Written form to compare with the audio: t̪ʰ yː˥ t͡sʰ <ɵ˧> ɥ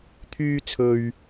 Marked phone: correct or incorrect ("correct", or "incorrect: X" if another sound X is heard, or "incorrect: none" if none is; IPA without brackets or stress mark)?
correct